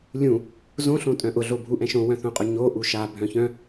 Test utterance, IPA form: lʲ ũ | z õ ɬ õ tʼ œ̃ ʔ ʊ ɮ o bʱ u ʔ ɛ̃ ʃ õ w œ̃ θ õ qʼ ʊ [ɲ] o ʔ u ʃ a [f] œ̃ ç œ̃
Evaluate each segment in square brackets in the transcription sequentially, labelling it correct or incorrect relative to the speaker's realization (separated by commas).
correct, incorrect